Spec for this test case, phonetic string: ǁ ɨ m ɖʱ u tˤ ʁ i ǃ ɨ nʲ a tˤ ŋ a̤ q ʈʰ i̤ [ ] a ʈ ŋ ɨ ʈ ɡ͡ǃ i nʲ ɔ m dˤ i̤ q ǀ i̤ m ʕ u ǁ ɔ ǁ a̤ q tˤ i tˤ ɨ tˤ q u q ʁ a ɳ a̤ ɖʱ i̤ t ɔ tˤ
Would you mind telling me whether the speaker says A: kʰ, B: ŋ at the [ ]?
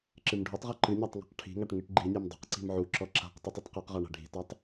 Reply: B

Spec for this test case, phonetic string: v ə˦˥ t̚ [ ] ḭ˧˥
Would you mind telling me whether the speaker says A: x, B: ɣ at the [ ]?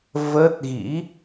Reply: B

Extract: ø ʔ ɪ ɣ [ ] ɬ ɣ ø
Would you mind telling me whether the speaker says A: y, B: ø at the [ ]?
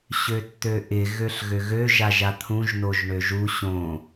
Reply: B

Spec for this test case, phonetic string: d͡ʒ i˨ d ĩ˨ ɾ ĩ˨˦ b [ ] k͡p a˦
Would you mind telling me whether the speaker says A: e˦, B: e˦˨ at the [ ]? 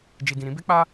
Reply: A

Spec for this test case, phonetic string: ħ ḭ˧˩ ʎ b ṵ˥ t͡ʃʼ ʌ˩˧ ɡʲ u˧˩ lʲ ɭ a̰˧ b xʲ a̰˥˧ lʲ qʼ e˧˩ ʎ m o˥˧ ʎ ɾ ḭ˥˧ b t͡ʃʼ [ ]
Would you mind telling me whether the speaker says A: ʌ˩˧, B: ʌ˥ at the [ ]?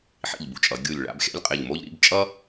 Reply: B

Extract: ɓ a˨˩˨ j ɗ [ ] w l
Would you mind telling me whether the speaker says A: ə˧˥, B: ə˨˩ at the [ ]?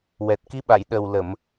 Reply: B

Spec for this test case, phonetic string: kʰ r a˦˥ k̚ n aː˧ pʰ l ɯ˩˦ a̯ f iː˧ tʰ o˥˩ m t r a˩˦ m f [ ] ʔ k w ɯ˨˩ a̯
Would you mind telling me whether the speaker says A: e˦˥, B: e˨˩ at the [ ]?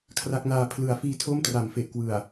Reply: B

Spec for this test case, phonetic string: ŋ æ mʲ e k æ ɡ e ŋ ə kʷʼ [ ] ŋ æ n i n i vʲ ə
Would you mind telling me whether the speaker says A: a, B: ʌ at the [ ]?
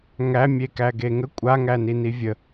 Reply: A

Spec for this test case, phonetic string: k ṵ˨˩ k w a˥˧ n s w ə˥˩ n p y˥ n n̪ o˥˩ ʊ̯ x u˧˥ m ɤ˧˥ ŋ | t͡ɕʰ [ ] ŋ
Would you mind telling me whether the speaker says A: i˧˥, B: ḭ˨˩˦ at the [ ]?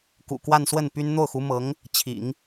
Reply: B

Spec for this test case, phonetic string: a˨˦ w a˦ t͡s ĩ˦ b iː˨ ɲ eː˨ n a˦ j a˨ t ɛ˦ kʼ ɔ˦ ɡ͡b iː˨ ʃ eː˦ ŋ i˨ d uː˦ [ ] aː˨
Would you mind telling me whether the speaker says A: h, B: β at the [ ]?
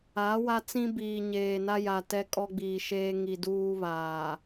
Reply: B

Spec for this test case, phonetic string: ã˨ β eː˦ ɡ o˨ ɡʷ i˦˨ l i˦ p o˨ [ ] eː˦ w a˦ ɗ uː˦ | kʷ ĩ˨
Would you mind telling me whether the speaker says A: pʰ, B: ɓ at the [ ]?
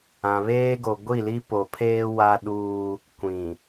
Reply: A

